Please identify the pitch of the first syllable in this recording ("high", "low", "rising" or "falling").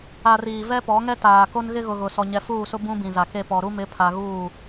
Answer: low